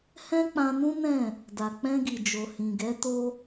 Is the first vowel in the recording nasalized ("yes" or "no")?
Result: yes